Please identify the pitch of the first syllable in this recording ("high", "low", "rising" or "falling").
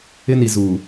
high